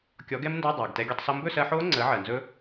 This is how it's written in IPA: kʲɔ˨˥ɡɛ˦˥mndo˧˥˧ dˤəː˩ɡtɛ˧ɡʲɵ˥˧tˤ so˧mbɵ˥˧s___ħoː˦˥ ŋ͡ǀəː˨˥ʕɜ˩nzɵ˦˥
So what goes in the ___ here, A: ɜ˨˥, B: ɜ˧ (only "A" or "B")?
B